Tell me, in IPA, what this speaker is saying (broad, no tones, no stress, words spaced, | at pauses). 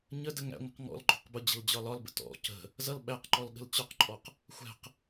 ɲədə ŋæ̰ŋʷə̤q ŋɔ̰lɡ͡ǃɔ̤q bʊd͡ʑə̤l d͡ʑɒlɒlbə̰ tɔ̰ cə̤ | zʌl ɓæqǃɔl ɠə̤lt͡ɕɒqǃʼɔq | xʷæ̤q